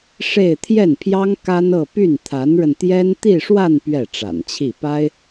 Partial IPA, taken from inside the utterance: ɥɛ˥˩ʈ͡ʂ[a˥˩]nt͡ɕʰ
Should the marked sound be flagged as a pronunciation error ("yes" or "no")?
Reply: yes